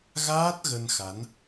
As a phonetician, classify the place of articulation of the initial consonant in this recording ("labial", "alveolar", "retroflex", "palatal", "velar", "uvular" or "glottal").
velar